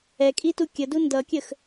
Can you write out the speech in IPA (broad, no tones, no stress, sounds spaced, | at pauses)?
ɛ kʼ i t u kʲ ə d u n d ʌ kʲ ə x